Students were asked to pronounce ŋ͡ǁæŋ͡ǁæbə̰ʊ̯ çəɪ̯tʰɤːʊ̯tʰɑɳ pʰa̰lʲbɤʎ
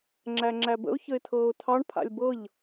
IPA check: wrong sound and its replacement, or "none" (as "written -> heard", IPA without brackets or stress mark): none